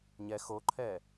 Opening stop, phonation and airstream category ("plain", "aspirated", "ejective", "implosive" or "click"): click